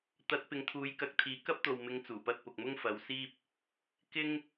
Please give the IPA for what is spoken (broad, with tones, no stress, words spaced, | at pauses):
t̪ɐ˨˥t̚pɪ˨ŋt̪ʰuː˨˥j kɐ˧k̚t̪ʰiː˨˥ kɐ˥p̚t̪o˨wmɪ˨˥ŋ t͡suː˨˩pɐ˧t̚pʊ˨k̚mʊ˥ŋ fɐ˨˥wsiː˥p̚ | kɪ˥ŋ